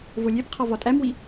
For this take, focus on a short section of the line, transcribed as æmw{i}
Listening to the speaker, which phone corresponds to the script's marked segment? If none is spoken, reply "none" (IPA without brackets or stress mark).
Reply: i